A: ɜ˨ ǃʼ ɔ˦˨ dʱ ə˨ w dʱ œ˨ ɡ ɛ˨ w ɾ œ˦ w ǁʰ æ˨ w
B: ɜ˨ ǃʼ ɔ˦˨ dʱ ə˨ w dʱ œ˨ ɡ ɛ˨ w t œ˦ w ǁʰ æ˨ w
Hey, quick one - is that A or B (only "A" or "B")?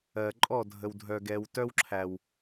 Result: B